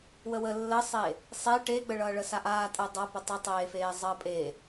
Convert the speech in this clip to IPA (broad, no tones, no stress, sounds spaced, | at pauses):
w ə w ə lː ə sˤ e | sˤ e ʈ e ɡ͡b ə ɭ ʌː ɭ ə s a ʔ aː tʼ əː dˤ ʌ p ə tˤ ə tˤ eː f eː zˤ əː pʼ e